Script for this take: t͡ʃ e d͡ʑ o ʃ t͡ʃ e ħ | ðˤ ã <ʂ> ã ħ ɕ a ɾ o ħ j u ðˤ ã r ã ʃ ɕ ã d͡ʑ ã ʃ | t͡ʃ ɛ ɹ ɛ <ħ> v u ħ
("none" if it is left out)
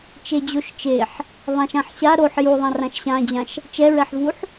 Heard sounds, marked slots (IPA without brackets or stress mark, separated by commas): ʃ, ħ